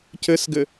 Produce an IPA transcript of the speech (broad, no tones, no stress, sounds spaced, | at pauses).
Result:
c ɘ s ɡ ɘ